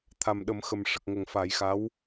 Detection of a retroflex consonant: present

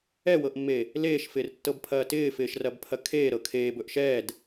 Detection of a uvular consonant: absent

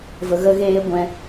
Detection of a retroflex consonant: absent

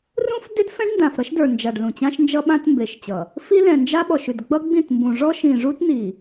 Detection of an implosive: present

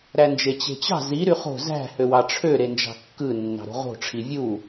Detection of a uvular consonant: present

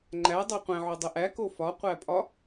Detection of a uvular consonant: present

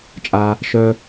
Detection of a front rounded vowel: present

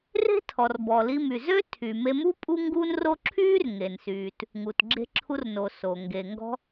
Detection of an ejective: present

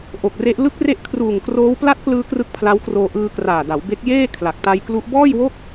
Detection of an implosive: absent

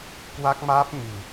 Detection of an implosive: absent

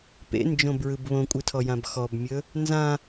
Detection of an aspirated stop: present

